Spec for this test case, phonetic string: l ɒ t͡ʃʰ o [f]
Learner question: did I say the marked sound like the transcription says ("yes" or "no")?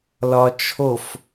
yes